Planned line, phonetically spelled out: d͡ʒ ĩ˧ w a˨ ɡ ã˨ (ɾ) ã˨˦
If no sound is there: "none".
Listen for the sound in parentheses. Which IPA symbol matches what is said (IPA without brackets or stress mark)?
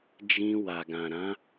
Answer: ɾ